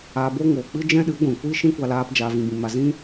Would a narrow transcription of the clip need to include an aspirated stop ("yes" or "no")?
no